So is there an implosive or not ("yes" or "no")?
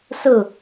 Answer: no